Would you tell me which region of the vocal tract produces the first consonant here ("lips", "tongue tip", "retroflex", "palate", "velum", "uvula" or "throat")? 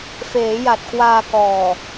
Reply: lips